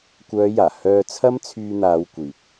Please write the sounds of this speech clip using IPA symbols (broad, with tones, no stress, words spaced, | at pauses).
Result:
kʷœː˨˧jaː˨˩ hœː˧t͡sʰɐ˥m t͡sʰyː˧n̪aː˨˧wkʷiː˨p̚